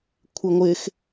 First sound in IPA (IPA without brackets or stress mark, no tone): kʷʰ